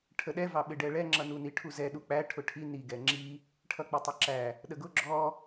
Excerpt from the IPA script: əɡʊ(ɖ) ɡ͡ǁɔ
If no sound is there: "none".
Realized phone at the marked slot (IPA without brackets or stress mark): none